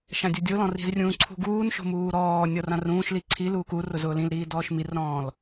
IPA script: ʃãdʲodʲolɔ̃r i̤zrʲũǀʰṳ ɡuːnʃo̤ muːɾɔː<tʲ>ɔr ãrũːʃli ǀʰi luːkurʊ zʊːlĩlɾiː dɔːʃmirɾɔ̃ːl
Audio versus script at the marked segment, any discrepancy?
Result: yes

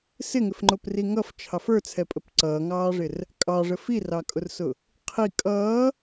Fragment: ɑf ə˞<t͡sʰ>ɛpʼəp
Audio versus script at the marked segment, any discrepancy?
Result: no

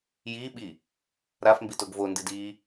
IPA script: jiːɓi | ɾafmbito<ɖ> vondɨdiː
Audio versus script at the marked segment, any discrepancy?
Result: yes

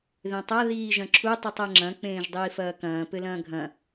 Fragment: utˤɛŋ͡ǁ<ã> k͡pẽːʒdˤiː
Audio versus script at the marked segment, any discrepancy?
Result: yes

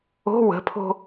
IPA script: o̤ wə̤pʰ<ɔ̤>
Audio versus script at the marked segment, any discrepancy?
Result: yes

